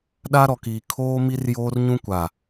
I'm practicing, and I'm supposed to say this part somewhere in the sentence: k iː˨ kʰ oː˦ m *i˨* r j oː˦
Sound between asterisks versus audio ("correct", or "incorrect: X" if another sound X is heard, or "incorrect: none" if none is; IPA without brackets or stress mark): incorrect: i˦